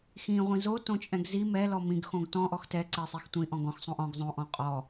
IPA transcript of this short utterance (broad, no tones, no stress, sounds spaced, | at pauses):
x ĩ ʁʷ ĩ z o t õ t͡ʃʼ ɛ̃ ɡ z i m ɛ l ɔ m ĩ ɡ x õ ɡ t ɔ̃ ʔ ɔ x t ɛ ǀ ɛ sˤ i x tʷ ĩ ʔ ɔ̃ ɡ ɔ̃ x sˤ õ ʔ ɔ̃ ɡ zˤ õ ʔ ɔ̃ qʼ ɔ